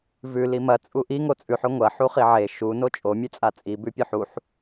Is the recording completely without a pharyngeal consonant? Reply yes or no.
no